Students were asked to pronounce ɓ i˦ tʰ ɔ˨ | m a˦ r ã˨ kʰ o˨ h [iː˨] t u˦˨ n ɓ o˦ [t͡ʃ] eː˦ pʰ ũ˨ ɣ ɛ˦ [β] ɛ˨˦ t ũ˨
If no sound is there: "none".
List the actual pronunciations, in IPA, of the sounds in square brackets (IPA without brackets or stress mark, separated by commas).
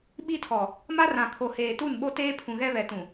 eː˨, t, β